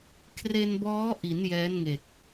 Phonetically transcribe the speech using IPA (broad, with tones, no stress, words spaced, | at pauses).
kʰre˧nbɔː˦˥ʔi˩˦n jɛː˦˥nŋe˨˩k̚